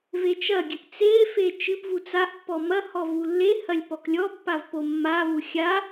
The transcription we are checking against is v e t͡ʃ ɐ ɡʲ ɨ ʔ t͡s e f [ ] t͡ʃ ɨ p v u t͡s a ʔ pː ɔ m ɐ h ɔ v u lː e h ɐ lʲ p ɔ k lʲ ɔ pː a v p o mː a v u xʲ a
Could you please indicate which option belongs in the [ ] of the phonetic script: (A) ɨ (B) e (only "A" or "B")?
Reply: B